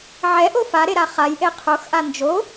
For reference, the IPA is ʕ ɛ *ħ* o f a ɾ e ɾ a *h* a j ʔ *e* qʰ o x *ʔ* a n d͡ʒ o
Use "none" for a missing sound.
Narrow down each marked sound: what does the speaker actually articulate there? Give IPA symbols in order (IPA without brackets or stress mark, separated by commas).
ʔ, χ, e, ʔ